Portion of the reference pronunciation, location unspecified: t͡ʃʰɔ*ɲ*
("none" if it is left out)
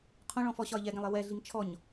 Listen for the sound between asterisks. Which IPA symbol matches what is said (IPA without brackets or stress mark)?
ɲ